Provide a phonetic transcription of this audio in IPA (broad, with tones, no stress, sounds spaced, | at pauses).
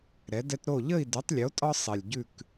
ɾ ɛ˩˥ d ɛ˦ t ɾ o˥˨ ʎ ə˥˨ i̯ d ʉ˩˥ tˤ lʲ o˩˥ tʼ ɒ˦ sˤ e˨˩ lʲ ɟ ʉ˥˨ k